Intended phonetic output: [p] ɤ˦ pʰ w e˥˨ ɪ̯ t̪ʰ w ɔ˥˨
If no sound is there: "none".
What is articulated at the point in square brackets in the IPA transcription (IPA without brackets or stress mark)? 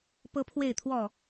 p